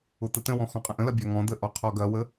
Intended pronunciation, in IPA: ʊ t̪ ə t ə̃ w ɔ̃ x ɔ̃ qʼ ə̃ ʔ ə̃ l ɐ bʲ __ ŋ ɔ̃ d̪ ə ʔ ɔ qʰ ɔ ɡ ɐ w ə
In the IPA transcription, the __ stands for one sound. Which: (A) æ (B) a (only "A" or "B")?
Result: B